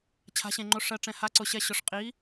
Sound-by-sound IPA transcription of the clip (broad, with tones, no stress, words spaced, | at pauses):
t͡ɕʰa̤˧˥ɕẽ˧ŋ͡ǃo˧˥ ʂɜ˧ʈ͡ʂɛ̃˧ha˧˥ǀʊ˧ ɕɛ˧ ɕʊ˧ʂqʼi˧˥